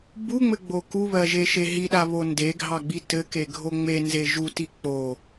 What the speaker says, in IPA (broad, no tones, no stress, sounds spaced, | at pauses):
b u ŋ͡m ɘ ɡ͡b o k u β ɜ ʒ e ʃ e ɦ i ɗ a β o n d e ɡʱ ɑ ɡ͡b i t ɘ k e ɡʱ o ŋ͡m e n z e ʒ u t i k͡p o